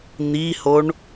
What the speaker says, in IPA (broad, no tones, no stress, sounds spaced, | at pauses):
n̪ i h o ɳ